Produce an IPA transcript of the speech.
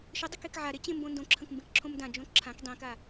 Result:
ʃ ə dˤ ɵ k e k ʕ a ɾ e t͡ɕ ẽ m b õ n d õ ǁʰ ə̃ k m b ẽ k ǁʰ õ m d ã d͡ʒ õ ǁʰ ã k dˤ ẽ k a

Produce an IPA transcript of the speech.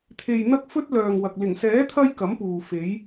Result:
t̪ʰ e˨ j n̪ ɐ˥ k̚ f ɵ˥ t̚ l œː˨ ŋ w ɐ˨ k̚ l ɪ˨˩ ŋ s ɛː˨˥ t̪ʰ ɐ˧ j k ɐ˨˥ m p uː˨ f e˨˧ j

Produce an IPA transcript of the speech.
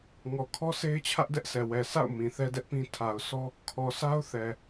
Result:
ŋ ɔ˨ kʰ ɔ˦ sʰ e˦ ɪ̯ t͡ɕʰ ä˦ ʔ d ɛ˦ ʔ sʰ ɛ˨ w ɛ˨ sʰ a̰˦˨ ʊ̯ m ĩ˨ θ ɛ˦ d ɛ˦ ʔ p ĩ˦ tʰ a˨ ʊ̯ sʰ ɔ˦ | kʰ ɔ˨ sʰ a˦ ʊ̯ θ ɛ˨

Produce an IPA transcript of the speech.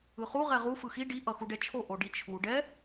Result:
ɯ χ u ʁ ɛ ʁ u f ɯ x i ɖ i ʔ ʌ x u ɖ ɛ t͡ʃʰ o ʔ o ɖ i t͡ʃʰ u ɖ ɛ

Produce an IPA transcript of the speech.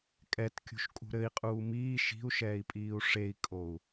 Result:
kʼ ɛ t kʲ ṳ ʃ kʼ ṳ ɾ ɘ i̯ qʼ uː m iː ʃ i̤ u̯ ʃ ɛː i̯ pʼ iː u̯ ʂ e i̯ kʼ o u̯

